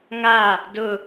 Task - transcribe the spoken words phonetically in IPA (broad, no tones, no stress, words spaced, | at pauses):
ŋa | dʊ